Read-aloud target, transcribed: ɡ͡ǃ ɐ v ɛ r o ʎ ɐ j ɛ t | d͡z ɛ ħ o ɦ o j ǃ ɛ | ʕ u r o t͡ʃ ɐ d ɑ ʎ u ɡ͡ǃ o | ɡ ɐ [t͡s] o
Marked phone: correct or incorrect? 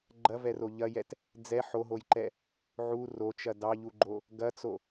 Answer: correct